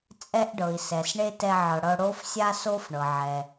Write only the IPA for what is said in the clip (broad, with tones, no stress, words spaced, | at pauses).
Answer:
t͡sʼɛ˦ʔɖɤ˨i̯sɛ˨s ɳe˥tɛ˦ʕɤ˨ɽɤ˦ ɽo˥fsʲa˥so˥fɳɤ˨ ʕɛ˨